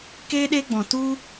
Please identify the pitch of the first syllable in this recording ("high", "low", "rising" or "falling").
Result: high